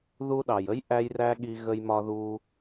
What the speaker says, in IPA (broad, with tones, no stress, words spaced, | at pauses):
ðu˧ɗɑ˨jə˦j ʔæ˦jræ˦ɠi˧ ɣə˧jmɒ˧ðu˧